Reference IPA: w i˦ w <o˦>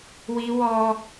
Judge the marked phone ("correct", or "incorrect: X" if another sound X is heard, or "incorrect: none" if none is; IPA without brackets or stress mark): incorrect: ɔ˦